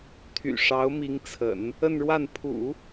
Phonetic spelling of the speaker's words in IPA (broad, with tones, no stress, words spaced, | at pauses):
t̪ʰy̰˨˩ʂɑ˧˥ʊ̯mi˧˥ŋt͡sʰə̰˨˩˦n | ə˥˧nɻwa˥˩n pʰṵ˨˩˦